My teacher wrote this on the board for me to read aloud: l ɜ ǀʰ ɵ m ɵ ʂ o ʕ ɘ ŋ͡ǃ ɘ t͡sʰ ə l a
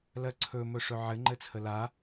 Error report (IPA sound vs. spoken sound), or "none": o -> ɵ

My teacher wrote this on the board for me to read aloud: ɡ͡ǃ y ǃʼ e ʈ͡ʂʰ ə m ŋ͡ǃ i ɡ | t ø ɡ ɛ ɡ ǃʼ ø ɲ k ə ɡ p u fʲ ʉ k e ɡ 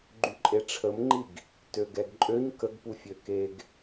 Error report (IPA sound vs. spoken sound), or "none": ʉ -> ø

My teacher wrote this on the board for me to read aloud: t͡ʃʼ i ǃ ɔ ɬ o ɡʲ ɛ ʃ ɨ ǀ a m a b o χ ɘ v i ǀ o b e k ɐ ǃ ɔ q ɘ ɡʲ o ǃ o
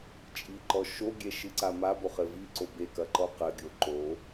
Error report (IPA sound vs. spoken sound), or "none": ɬ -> ʃ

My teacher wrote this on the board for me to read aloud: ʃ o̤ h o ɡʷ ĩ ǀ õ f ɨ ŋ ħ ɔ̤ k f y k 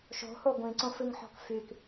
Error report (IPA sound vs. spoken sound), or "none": none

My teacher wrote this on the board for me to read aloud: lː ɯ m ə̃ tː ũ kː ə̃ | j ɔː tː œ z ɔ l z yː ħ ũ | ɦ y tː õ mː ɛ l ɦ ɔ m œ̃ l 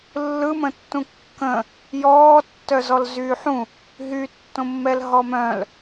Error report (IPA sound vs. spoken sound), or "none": none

